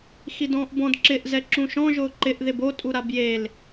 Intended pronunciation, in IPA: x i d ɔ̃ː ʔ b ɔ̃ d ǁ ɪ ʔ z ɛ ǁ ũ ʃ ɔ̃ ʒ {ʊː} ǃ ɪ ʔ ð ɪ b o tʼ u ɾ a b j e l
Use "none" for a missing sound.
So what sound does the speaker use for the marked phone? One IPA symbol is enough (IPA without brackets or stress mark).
ʊː